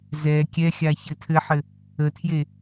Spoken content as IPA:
z ɛ kʲ ɛ xʲ a ç ɘ tʰ ɘ ħ ɘ | ə tʰ j e

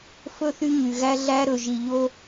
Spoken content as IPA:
f ɵ˦˨ θ y˦ ɲ y˨ ɣ æ˦ ɮ æ˦ ɾ ɵ˨ ʒ i˨ ʎ o˦

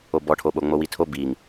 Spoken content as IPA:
o b ɔ ʈʰ o ɓ o ŋ͡m o w i tʰ o b i ŋ

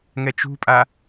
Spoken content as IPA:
ŋ ɛ t͡ʃ ṳ pʼ a

